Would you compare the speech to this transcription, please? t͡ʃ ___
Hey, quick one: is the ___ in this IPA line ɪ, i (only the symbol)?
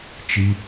i